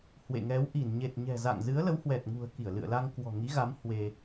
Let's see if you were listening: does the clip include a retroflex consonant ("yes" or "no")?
no